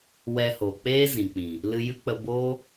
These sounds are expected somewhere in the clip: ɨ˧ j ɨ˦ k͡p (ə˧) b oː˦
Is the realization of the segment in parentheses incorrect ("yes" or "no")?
no